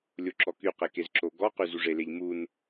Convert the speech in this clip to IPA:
lʲoǁɔkyqe kezǁoɡɔqy zuʐeleʎ mun

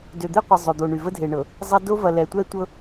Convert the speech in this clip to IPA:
dø˨d̪e˦qʷə˨ zˤø˨d̪o˨ɳy˨ və˦dʱe˨ɳɤ˨ | zˤɐ˦ do˦vɐ˨lɛ˨ tʷɛ˦tʷɤ˦

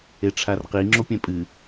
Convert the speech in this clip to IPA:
eʈ͡ʂʰarqi ŋ͡ǁopʲɛ̃pʼɨ

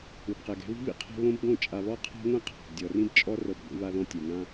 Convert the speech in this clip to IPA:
ɯ˨bqɛ˨ɡɛ̤˨˦βi̤˦ βḭ˦qʰɛ̤˦ βõ˦bɡõ˦˨ t͡ʃʼa˨βɔ˦qʰa̤˦ŋʷɛ̃˦ qʰa̤˨bdʲɔ˨rĩ˦b t͡ʃʼɔ˦ rɤ˦˨bɡʷḭ˦βa˦ðɔ̃˦ tʲɛ˨ ŋã˦

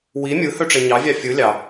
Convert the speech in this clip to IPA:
wi mʲɯhøʈ͡ʂe ɲɑvʲɑ fʲɯ lʲɑ

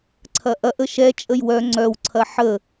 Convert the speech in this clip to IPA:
ǀʰɐʔɐʔ əʃɛ t͡ʃʼəjwœ ŋ͡ǀœw ǀʰɐħə

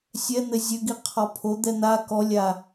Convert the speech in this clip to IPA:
sʲɛn̪ɘ zʲɘɡi qʰɔpʰod̪ɛ n̪a kɔlʲa

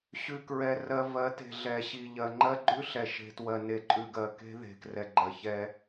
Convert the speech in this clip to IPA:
ɕʉ˨kɹɛ˨ rɜ˨ vɜ˨˦te̤˨ɮɛ˨ɕi˨ ʎɜ˨ŋ͡ǃɜ˦ ɡ͡ǃʉ˦ɬɛ˨ ʃe̤˨twɜ˨ ne˨ǃʼʉ˨ɡɜ˨ ke̤˦ðe̤˨krɛ˨ ɡ͡ǃɜ˨çɛ˦

